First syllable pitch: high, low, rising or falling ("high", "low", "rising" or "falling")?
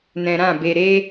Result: low